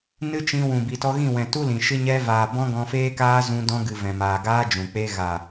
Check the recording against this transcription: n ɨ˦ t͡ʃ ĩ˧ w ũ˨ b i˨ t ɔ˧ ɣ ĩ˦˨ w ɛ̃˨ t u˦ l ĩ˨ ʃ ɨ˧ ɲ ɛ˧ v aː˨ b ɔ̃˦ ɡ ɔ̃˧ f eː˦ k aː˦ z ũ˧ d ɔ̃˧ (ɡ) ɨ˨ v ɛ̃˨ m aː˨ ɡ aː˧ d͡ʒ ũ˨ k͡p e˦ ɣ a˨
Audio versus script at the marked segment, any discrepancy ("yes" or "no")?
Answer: no